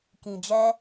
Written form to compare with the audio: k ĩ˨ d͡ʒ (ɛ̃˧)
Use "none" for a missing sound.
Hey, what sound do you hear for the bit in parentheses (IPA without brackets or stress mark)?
ɛ˧